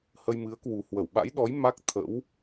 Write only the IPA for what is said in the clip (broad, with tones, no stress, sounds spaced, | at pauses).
h ə˧ j m ɨ˨˦ ə̯ k w u˨˩ h w ə˧˩ w ɓ a̰˧˥ j ɗ ɔ˨˦ j m a˦˥ k̚ t̪ʰ ə̰˧˥ w